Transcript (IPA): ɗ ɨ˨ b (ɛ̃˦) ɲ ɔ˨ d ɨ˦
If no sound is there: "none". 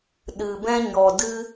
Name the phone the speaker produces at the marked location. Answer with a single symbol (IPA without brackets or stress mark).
ɛ̃˦